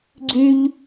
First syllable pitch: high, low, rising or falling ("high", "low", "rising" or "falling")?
high